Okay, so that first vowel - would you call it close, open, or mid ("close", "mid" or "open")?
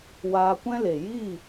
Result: open